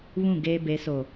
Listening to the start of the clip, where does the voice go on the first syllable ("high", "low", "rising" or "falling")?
falling